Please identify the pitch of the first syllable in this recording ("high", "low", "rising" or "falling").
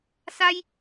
high